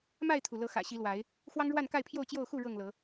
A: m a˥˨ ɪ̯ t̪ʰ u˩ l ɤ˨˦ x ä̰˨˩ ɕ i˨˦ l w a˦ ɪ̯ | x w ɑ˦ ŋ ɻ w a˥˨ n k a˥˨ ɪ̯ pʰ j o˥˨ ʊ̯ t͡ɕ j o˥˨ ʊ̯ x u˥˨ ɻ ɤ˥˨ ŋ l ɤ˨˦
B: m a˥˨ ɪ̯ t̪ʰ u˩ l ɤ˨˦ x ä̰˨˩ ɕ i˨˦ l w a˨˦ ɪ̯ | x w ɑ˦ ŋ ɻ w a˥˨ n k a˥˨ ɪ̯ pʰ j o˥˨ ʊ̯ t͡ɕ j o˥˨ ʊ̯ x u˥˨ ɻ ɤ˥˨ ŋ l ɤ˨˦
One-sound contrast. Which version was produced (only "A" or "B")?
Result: B